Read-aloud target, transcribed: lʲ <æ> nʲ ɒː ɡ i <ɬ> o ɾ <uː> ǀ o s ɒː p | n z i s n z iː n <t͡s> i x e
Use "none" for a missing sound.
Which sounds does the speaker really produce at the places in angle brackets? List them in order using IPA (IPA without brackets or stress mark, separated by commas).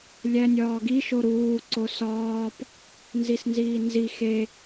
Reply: æ, ʃ, uː, z